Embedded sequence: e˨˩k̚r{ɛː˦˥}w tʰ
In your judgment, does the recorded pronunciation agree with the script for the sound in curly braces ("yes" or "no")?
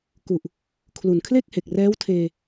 yes